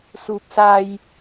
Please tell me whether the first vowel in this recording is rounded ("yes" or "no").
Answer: yes